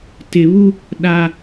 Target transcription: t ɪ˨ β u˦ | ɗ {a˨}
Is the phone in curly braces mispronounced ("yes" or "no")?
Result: no